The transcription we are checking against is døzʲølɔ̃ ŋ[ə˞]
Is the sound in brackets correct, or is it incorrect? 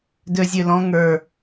correct